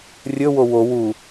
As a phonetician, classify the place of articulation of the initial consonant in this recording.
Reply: alveolar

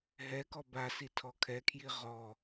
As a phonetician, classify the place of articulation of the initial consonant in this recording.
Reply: glottal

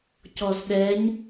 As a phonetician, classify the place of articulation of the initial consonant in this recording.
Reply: palatal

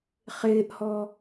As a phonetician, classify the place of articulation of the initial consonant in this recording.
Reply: uvular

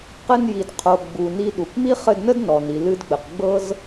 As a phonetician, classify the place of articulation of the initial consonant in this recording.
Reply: uvular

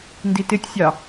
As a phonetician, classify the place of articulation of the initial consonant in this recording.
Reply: alveolar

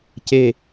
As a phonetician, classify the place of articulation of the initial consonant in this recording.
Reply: palatal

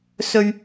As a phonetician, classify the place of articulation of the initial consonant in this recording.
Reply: alveolar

